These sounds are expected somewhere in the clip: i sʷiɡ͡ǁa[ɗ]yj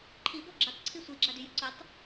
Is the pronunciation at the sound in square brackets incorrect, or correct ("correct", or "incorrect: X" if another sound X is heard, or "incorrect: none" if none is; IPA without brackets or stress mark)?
incorrect: d